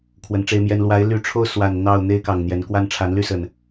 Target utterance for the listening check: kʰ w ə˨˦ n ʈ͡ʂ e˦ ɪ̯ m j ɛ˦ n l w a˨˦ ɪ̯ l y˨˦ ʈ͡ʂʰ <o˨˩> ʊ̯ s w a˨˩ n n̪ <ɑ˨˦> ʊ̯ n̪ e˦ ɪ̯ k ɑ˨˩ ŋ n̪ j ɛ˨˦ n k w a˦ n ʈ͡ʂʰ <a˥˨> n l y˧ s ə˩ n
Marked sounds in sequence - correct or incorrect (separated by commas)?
incorrect, incorrect, incorrect